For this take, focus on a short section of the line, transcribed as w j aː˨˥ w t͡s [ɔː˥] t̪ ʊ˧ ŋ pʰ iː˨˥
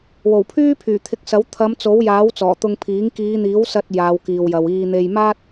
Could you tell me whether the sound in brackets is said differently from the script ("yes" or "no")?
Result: yes